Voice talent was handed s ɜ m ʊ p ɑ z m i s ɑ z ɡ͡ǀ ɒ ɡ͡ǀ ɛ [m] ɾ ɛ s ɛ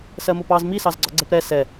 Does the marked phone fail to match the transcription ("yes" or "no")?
yes